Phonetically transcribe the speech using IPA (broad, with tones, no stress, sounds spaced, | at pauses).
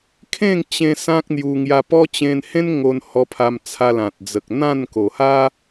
kʰ ẽ˥˧ ŋ t͡ɕ ẽ˧ s ã˦ k̚ n̪ j u˧ ŋ j a˧ p ɔ˦ t͡ɕ ẽ˧ n h ẽ˦ n ŋ o˧ n h ɔ˧ pʰ a˧ m t͡sʰ a˧ l ã˨ t̚ d͡z ə˨ k̚ n̪ ã˥˧ n k o˨˩ h a˦